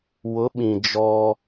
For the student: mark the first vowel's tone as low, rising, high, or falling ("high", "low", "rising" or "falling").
rising